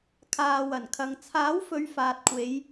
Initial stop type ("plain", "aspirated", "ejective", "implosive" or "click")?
aspirated